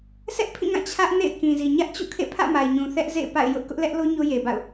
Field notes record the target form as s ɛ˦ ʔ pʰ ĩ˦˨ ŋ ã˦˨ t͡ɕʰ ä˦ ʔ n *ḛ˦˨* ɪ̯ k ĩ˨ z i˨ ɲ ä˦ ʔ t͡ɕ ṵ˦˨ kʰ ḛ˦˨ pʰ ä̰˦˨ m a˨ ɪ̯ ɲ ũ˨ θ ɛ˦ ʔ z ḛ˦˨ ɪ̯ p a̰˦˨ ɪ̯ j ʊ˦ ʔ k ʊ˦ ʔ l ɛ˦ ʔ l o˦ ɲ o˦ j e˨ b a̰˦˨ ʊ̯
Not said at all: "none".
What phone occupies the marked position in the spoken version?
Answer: ḛ˦˨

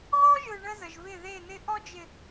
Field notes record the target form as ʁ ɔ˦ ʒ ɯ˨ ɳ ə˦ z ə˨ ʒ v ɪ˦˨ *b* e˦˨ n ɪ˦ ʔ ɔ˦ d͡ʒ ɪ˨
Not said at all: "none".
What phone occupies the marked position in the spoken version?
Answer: ð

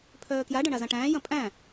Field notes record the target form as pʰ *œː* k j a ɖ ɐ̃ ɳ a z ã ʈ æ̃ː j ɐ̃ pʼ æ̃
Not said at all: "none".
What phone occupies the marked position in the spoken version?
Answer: œː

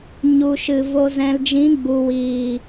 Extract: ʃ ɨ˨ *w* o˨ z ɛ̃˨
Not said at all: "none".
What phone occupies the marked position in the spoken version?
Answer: v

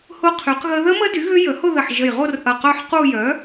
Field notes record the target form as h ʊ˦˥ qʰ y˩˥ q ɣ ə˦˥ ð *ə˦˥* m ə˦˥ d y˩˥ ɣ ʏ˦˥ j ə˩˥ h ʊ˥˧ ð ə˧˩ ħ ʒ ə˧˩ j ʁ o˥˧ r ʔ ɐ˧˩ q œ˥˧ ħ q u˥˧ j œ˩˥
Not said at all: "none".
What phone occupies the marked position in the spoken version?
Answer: ə˦˥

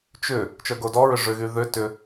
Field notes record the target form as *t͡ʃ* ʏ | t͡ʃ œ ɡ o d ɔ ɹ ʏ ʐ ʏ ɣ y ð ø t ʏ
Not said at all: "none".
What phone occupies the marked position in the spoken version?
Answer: t͡ʃ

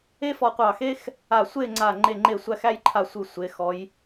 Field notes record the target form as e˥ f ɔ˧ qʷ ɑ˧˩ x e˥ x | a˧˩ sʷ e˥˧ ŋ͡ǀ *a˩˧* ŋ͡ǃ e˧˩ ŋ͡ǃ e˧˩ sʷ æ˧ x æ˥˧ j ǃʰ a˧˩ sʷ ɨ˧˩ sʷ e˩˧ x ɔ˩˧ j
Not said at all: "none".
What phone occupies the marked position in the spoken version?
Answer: a˧˩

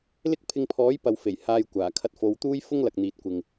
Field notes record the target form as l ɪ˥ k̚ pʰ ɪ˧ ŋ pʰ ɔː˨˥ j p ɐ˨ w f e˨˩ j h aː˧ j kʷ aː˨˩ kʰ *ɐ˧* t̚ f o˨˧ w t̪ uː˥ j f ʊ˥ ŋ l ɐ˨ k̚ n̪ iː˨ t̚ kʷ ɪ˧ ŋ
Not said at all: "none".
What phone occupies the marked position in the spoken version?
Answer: ɐ˧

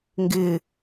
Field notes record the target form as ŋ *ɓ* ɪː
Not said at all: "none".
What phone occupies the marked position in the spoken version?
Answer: ɡ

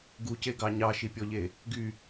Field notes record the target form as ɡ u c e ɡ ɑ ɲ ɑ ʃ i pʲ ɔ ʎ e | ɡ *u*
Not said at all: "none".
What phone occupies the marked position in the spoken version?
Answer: y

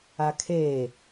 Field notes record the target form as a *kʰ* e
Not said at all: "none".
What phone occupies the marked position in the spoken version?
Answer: kʰ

